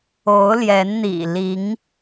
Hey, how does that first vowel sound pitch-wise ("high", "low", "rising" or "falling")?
rising